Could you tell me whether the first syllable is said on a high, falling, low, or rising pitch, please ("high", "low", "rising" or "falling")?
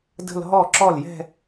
falling